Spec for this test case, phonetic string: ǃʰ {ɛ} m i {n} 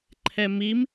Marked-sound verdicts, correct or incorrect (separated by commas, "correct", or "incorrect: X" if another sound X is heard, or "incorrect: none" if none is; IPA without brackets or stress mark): correct, incorrect: m